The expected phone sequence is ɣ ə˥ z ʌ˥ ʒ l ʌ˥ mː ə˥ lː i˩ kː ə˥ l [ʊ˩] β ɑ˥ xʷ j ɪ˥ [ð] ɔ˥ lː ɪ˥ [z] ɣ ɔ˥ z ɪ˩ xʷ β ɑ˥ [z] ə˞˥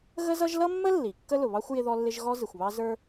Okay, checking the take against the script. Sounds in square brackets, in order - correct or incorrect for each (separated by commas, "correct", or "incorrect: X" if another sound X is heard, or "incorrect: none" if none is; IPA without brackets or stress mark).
correct, correct, incorrect: ʒ, correct